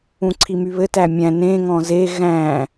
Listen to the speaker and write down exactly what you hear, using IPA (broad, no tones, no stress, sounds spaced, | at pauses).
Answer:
ũ ǀʰ i m y β ɘ t æ mʲ æ̃ n ẽ ŋ ɔ̃ z e ɣ æ̃